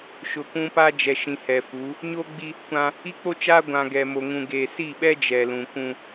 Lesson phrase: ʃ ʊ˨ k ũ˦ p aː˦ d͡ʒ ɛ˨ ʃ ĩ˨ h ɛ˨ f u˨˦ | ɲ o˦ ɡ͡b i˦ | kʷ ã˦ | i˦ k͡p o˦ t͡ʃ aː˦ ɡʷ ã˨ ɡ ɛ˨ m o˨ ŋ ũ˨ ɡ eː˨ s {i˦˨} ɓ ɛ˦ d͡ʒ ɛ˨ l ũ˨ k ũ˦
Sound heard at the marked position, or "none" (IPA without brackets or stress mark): i˦˨